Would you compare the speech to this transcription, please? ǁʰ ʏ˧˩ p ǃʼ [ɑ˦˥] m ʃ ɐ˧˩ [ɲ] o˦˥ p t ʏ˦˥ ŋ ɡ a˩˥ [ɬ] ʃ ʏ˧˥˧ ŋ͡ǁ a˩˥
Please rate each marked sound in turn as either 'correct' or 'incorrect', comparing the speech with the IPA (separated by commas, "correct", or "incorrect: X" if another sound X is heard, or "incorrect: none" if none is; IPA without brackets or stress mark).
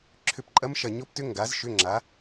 incorrect: ɐ˦˥, correct, incorrect: z